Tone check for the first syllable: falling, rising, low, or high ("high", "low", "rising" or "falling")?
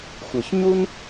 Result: low